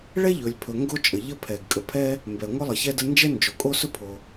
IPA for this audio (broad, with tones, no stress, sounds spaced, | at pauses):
ɭ ɛ˥ ʎ ɵ˩ lʲ pʰ ɵ˩ ŋ ɡ o˥ t͡ʃʼ ə˩ ʎ ə˥ pʰ ɛ˩ ɡ kʼ ə˩ pʰ ɛ˥ | m b ɛ˩ ŋʷ ə˥ lˠ ə˩ ç ɛ˥ d ə˥ n d͡ʒ ɛ˥ n d͡ʒ o˩ kʼ o˥ s ɵ˥ pʰ o˩